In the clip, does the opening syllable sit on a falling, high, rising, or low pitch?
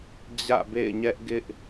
falling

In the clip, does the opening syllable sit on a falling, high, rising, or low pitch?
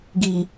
low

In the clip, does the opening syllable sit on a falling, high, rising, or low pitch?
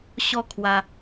high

